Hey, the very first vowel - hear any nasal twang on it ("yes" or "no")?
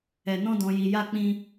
no